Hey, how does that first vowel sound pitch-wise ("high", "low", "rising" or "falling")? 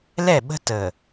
falling